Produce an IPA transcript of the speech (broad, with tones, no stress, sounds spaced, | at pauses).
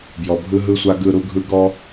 b j ɔ˨ bʱ ɯ˧ ɦ ɯ˧ sʷ a˧ ɡ ɯ˦˨ ɾ u˦ ɡʱ ɯ˦ ɡ ɔ˦